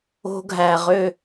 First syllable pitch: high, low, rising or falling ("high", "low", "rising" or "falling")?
high